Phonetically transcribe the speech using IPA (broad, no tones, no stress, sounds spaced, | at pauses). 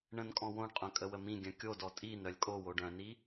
ɳ ə̃ n kʼ ɔ̃ w õ ɳ qʼ œ̃ kʼ ə w ə m ĩ ɡʲ œ̃ kʲ o d ɔ tʼ i n œ lʲ kʼ o w o ɖ œ̃ n i